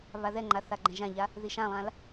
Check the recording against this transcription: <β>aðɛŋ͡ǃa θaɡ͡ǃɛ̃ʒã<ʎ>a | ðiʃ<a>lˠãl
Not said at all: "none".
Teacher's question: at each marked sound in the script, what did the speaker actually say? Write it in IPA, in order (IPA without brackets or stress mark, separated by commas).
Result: β, ʎ, ã